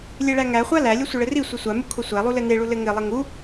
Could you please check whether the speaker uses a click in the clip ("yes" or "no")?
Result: no